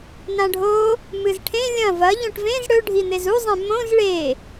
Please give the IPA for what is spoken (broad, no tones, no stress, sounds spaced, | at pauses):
n ã ɖʱ o | m ɨ z ʈʰ ẽ lʲ ɐ̃ v ɐ ʎ õ ʈ v ẽ z ɽ ɵ ɖʱ i n̪ e z u zˤ ẽ m õ z ɭ e